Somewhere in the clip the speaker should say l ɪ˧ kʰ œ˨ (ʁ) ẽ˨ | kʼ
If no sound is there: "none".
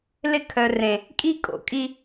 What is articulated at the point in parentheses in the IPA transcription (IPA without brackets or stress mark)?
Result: r